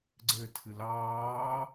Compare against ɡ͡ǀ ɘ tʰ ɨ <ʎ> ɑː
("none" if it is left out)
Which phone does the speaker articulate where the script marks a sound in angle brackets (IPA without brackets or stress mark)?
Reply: l